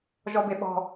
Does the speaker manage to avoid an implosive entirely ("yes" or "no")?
no